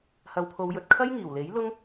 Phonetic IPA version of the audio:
h ɐ˨˧ w pʰ o˨˧ w j ɵ˨ t̚ kʰ ɐ˥ j ŋ iː˨˩ w l e˨˥ j l ʊ˥ ŋ

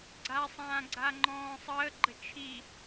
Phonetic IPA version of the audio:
ɡ͡ǀ a sˤ ãː ɡ͡ǀ a ŋ͡ǃ ɔ̃ː sˤ əː ɡ͡ǃ ə t͡ʃʰ i

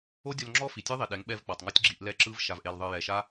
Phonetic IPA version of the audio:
o˦ dʲ ɔ˧ l ŋ͡ǁ ɔ˦ f i˨ tʲ e˦ ðˤ i˨ ɗ ɛ˨˦ ŋ ɓ ɛ˧ v k͡p ɔ˨ tˤ ŋ ɔ˦ tʲ ɡ͡ǁ i˧ ʔ l ɛ˦ ǁ ɯ˦ v ʃ a˨ v ʔ e˨ l ðˤ ɯ˨ j ɛ˨ ʃ a˦

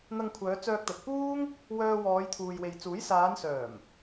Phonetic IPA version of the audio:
n̪ ɐ˧ ŋ kʷʰ œː˨˧ t͡s œː˧ k̚ t̪ ɐ˨ t̚ p uː˥ ŋ | w œː˧ w ɔː˨˧ j t̪ʰ uː˨ j w e˨ j t͡s uː˨˥ j s aː˨˧ n s œː˨˩ m

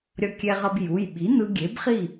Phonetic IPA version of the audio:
ɾʲ ʌ˧ kʲ ɛ˧ ʁ ʌ˧ b j u˩˧˩ j ɓ i˩˥ n̪ ɯ˧ ɡʲ e˩˥ b χ i˥˩

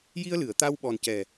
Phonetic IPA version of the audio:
j i˧ ə̯ l ɨ˨˩˨ ə̯ t̪ a˧ w ɓ ɔ˨˩ n c ɛ˨˩

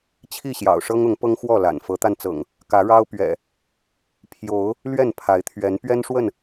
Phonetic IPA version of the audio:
t͡ɕʰ i˥˨ ɕ j ɑ̰˨˩ ʊ̯ ʂ ɤ˦ ŋ ʊ˨˦ ŋ p ɤ˦ ŋ x w ɔ˥˨ l a̰˨˩ n f ɤ˨˦ t̪ a˧ n t͡s ɤ̰˨˩ ŋ | k ä˨˦ ɻ ɑ˦ ʊ̯ p ɥ ɛ̰˨˩ | pʰ j o˨˦ ʊ̯ | l ɥ ɛ˥˨ n pʰ a˨˦ ɪ̯ t̪ʰ ɥ ɛ˨˦ n p ɥ ɛ˦ n ʂ w ə˥˨ n

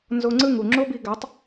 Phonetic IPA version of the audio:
n z o˧ ŋ͡ǀ ɯ˦˨ ŋ u˨ ŋ͡ǁ o˦ b i˧ ɡ a˨˦ tˤ

